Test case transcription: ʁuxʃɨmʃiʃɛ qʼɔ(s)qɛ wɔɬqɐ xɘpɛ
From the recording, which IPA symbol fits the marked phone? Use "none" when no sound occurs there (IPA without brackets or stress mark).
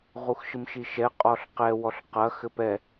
ɬ